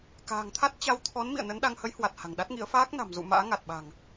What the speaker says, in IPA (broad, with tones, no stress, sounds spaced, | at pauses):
k a̤ː˨˩ ŋ t̪ʰ a˦˥ t̚ t͡ɕ a˧ w t̪ʰ ɔ˨˦ n m ḭ˧˨ ə̯ n ə˨˦ n ɗ a˧ ŋ h ə˨˦ j h w a˨˩ t̚ h a̤˨˩ ŋ ɗ a˦˥ t̚ ŋ ḭ˧˥ ə̯ f aː˦˥ k̚ n a̤˨˩ m z ṵ˧˨ m a̰ː˧˥ ŋ a˨˩ t̚ ɓ a̤˨˩ ŋ